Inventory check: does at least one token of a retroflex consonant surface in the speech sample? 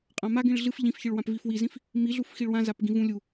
yes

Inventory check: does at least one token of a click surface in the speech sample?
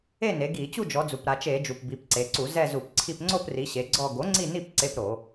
yes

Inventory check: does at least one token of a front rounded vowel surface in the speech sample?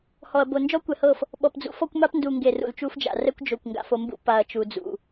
no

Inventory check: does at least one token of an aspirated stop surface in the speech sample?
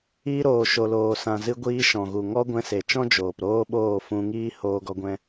no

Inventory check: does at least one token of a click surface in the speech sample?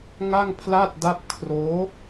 no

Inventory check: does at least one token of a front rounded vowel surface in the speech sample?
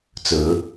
no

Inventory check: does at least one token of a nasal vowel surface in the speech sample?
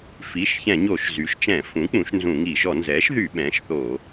yes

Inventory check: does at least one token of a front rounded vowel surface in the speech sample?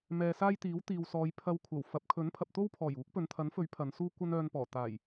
yes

